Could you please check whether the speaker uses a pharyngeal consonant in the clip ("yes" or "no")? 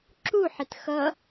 yes